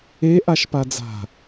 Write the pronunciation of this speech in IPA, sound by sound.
e ʔ a ʃ p a d͡z a̤

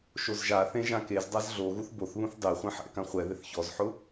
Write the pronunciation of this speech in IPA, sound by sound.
ʃ o z ʒ a θ ẽ ʒ ã k e z dˤ a z ɮ o ɣ u θ b o θ β ũ θ dˤ e χʷ ẽ ħ ɛ̰ k ã χʷ ɛ ð ɪ θ ç ɔ z ħ ʊ

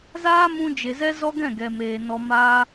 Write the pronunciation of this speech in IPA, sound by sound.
z aː˦ m ũ˧ d͡ʒ e˨ z ɛ˦ z ɔ˦ ɡ ɛ̃˦˨ ɡ ɛ˨ m eː˨ n ɔ˧ m aː˧

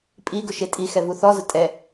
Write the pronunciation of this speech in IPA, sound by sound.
pʼ i ɡ ʊ ʃ e tʼ i x ɛ v u θ ɔ z ʊ tʼ ɛ

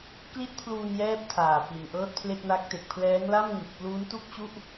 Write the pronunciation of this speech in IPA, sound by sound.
k l i˥˩ t̚ pʰ l uː˧ n j ɛː˥˩ p̚ tʰ aː˨˩ p i˨˩ n ʔ ɤː˥˩ t̚ pʰ l e˥˩ k̚ n a˦˥ k̚ t e˨˩ k̚ pʰ l ɛː˦˥ ŋ l a˥˩ m ŋ ɯ˨˩ k̚ p l u˦˥ n t u˥˩ k̚ t͡ɕ u˥˩ ʔ

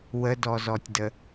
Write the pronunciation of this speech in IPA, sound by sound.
w ə d ɔ z ɔ tʲ d ə

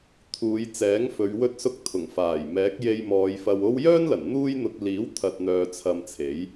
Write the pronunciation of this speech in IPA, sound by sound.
t̪ʰ uː˨˧ j t͡s ɛː˨˥ ŋ f ɵ˨˧ ɥ w ɵ˧ t̚ s ʊ˧ k̚ t̪ʰ ʊ˨˩ ŋ f aː˨˩ j m ɛː˨˥ k̚ j e˧ j m ɔː˨˧ j f ɐ˧ w o˥ w j œː˥ n l ɐ˨˩ n n̪ uː˥ j n̪ ʊ˧ k̚ l iː˨˥ w t̪ʰ ɐ˧ t̚ n̪ œː˧ t͡sʰ ɐ˧ m t͡sʰ e˨˥ j

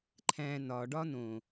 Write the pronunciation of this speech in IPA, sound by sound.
ǃʰ æ̃ n ɒ ɖ ɒ n õ

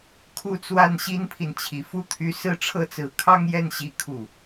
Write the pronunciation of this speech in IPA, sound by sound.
kʰ u˥˧ t͡s w a˥˩ n ɕ i˥ n pʰ i˨ n t͡ɕʰ i˨˩ f u˥˩ t̪ʰ y˧˥ s ɹ̩˥ ʈ͡ʂʰ ɤ˥ t͡s ɹ̩˧˥ kʰ ɑ˥ ŋ j ɛ˥˩ n ɕ i˥ kʰ u˥˩

